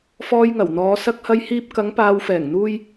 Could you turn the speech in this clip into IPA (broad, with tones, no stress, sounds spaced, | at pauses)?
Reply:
f ɔː˧ j ŋ ɐ˨˩ w n̪ ɔː˨˧ s ɐ˧ k̚ h ɐ˧ j h iː˧ p̚ k ɐ˨˧ ŋ p aː˨ w f ɛː˨˩ ŋ n̪ uː˥ j